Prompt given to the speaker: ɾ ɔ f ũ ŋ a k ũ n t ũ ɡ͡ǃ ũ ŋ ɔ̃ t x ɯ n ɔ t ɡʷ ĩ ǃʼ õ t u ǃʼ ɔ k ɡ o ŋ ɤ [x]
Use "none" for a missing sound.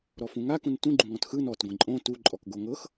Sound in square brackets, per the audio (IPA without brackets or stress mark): x